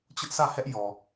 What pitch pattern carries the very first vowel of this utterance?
high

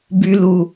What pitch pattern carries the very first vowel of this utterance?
low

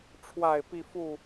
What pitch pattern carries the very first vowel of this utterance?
low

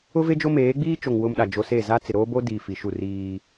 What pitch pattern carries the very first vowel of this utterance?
high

